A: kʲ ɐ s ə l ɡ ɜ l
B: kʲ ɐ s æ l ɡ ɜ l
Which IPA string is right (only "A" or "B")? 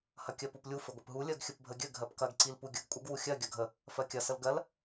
A